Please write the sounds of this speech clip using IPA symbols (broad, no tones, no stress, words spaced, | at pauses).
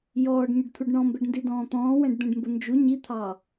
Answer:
jɔːɖɲʊɖt̪ʰuɖ ɳɔ̃mbɛɖndidɔ̃ː t̪ɔ̃ːwɛ̃ɖd̪ɛ̃ɖmbʊ nd͡ʒu ɲit̪ʰɑː